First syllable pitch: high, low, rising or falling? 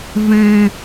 low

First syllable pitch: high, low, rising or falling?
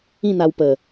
falling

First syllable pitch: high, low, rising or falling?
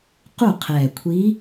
falling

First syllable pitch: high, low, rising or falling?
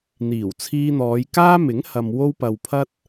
low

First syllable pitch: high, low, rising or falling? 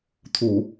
low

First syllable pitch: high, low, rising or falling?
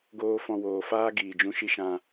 high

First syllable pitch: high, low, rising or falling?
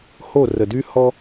falling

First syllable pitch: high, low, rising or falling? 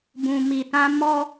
low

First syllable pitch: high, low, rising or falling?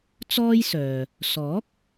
high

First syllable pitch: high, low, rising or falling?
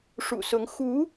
low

